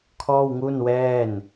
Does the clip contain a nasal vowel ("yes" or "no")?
no